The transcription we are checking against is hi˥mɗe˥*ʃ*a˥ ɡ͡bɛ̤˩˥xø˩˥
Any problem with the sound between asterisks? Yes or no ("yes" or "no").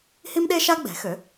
no